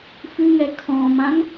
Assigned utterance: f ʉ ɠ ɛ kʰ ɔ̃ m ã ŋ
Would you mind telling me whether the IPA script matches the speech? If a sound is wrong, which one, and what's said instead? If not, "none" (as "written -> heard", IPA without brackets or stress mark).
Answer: ɠ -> ŋ